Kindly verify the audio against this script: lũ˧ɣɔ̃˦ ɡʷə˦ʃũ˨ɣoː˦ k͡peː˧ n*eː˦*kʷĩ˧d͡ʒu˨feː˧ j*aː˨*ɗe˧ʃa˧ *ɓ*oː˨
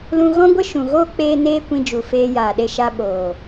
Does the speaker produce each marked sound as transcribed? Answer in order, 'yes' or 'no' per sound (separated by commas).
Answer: yes, yes, yes